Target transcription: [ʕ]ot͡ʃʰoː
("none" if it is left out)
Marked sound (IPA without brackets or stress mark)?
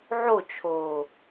ʕ